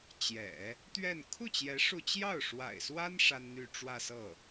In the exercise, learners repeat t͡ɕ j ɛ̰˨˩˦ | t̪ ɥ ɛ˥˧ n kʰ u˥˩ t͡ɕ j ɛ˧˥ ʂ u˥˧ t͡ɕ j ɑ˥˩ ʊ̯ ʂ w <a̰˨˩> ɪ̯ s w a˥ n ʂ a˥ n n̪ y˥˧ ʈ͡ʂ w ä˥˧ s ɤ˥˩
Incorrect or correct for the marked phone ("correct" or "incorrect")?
correct